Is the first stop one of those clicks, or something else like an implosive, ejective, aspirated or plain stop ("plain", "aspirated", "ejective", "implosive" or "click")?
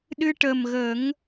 implosive